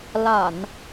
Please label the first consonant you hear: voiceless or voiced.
voiced